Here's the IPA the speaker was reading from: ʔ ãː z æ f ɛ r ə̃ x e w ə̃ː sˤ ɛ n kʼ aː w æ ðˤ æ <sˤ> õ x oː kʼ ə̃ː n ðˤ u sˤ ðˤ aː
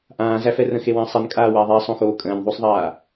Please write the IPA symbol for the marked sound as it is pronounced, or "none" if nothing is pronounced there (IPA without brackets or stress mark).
sˤ